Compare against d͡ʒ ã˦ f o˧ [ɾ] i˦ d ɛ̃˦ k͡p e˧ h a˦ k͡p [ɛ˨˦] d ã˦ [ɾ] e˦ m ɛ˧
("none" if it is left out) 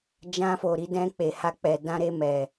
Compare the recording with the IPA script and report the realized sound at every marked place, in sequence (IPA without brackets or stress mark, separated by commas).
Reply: ɾ, ɛ˧, ɾ